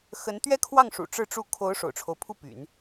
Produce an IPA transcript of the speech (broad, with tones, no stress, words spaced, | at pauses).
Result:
xə˧˥n t̪ɥɛ˥kʰwɑ˥˩ŋʂṵ˨˩ ʈ͡ʂɻ̩˥˧ʈ͡ʂu˥˩ kʰo˧˥ʊ̯ ʂo̰˨˩ʊ̯ʈ͡ʂʰo˦ʊ̯pʰu˥˩ py̰˨˩˦n